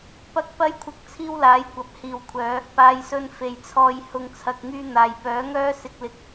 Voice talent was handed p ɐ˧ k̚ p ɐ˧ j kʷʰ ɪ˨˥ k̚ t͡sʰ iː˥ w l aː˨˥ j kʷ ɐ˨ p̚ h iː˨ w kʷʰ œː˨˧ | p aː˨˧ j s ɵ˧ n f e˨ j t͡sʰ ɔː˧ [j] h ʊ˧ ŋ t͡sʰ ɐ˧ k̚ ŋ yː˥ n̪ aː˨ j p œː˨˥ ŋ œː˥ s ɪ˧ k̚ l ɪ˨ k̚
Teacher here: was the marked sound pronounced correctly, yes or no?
yes